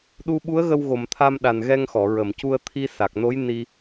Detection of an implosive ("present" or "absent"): present